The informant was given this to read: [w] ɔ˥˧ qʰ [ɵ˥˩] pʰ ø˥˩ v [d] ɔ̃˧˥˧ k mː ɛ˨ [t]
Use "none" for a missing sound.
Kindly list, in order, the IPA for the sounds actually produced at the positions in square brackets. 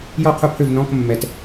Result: j, ʊ˥˩, n, t

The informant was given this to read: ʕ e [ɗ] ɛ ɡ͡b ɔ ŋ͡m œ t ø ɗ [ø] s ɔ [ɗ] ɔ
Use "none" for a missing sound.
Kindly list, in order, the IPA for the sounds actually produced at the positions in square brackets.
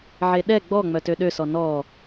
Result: ɗ, ø, n

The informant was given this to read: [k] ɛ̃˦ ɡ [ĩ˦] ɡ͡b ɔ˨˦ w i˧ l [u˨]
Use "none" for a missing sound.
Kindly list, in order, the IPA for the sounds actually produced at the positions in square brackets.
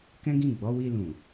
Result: k, ĩ˦˨, ũ˨

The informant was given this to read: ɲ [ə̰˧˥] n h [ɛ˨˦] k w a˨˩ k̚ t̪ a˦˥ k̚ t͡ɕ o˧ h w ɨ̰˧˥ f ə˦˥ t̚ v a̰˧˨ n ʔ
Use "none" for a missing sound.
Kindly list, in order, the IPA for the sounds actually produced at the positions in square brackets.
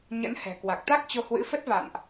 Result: ə̰˧˥, ɛ̤˨˩

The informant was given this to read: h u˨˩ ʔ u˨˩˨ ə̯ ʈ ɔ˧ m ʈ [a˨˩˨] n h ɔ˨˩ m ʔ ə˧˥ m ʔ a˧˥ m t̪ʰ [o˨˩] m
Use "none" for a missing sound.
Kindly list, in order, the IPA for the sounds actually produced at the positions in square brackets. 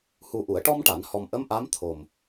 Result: a˨˩˨, o˨˩

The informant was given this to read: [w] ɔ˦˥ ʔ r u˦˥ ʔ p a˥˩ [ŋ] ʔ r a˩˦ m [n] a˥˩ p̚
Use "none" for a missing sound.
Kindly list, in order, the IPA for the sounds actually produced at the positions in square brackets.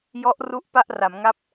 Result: j, none, ŋ

